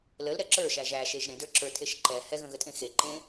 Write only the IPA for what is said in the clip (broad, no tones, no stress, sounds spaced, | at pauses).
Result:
l ə l ɾ ɛ ǁ ə˞ ʃ æ ʒ æ ʃ e ʒ ɾ ẽ d ə˞ ǁ ə˞ tʰ e ʃ ǃ ɛ h ɛ ɣ ə̃ ɣ ə tʼ ẽ x e ǃ ẽ